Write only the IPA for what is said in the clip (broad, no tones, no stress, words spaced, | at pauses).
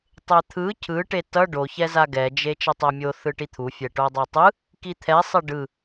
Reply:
tˤet̪ʰɯ cʰɯʈe tʌ ɖoçɛ zaɡɛd͡ʒe t͡ʃɛtˤɛmʲo θɯʈit̪ʰufʲɛ ʈodˤatˤɯ | kit̪ʰɛsˤɛ ɖɯ